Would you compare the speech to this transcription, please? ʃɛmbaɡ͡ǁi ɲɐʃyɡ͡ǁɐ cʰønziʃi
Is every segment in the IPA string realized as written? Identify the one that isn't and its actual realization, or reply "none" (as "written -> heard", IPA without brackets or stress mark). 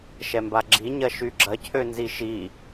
none